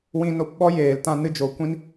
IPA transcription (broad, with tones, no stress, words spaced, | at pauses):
wĩ˧no˧p ɓɔ˦jeː˨ltã˧ nɨ˧d͡ʒo˨kʷĩ˦n